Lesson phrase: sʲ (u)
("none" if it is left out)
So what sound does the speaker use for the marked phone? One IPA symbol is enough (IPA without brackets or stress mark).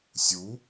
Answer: u